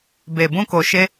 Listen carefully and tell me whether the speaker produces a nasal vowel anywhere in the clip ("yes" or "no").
yes